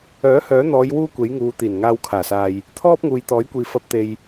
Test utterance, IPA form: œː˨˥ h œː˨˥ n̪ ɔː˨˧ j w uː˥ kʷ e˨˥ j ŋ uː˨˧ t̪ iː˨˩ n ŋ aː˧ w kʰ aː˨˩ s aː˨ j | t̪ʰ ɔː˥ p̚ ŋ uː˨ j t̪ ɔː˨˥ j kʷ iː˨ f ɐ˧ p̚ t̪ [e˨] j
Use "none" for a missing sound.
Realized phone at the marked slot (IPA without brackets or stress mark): e˨